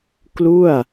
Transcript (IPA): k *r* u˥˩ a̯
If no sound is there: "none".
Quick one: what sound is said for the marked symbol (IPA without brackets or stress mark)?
l